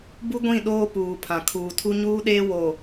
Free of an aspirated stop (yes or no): no